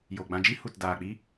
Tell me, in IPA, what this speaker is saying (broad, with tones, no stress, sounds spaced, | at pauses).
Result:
j o˨ ɡ͡b ã˧ d͡ʒ i˦ h u˨ t d aː˨ k͡p i˦